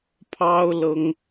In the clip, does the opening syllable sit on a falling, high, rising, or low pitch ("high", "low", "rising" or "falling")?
high